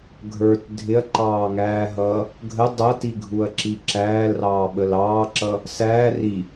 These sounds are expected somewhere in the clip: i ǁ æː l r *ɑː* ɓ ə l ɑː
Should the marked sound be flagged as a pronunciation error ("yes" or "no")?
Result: no